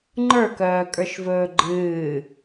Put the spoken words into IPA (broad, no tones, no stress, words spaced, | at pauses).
ŋ͡ǃə˞kœːkʼə˞ʃvɵː ɡ͡ǃɨː